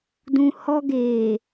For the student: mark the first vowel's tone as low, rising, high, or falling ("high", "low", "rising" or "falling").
high